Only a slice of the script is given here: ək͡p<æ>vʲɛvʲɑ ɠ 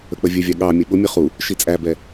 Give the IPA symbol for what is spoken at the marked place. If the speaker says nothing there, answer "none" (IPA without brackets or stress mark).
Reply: ə